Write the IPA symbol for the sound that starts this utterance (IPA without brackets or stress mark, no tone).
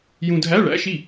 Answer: j